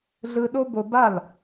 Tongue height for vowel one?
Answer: high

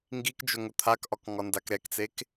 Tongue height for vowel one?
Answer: high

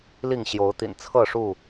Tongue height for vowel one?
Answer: high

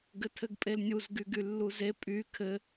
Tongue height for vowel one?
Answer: mid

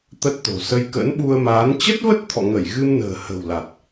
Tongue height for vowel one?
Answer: mid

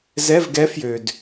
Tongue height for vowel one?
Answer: mid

